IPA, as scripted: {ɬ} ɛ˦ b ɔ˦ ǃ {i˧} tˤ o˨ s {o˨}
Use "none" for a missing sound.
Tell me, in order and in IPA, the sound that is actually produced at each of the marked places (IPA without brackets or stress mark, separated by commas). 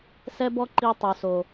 s, i˧, o˨